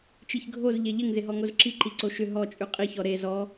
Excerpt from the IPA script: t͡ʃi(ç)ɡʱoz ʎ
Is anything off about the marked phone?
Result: no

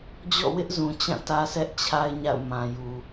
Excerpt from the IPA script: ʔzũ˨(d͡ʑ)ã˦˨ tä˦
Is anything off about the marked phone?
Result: yes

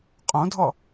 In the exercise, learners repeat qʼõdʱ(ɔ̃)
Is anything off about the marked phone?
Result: yes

